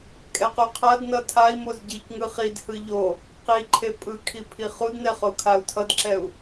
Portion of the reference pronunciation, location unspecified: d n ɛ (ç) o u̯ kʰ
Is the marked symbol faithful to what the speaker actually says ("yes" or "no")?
no